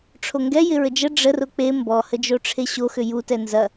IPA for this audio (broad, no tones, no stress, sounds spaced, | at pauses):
ʈ͡ʂʰ o ŋ ɡ ɛ j ɪ ɹ ə d͡ʒ ə ɖ͡ʐ ə r ʊ k͡p e m b ɔ h ə d͡ʒ o ʈ͡ʂʰ e ɕ o x ʏ j u t ɛ n z ɐ